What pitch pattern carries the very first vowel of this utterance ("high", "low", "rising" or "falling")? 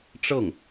falling